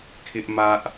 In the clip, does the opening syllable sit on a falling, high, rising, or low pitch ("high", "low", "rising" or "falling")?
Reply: high